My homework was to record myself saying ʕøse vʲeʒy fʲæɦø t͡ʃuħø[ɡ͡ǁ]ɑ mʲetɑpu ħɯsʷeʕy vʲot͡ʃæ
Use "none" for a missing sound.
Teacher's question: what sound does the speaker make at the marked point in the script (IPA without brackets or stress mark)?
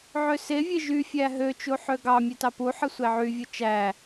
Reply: ɡ